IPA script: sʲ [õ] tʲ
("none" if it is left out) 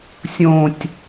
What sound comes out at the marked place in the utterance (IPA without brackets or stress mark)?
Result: õ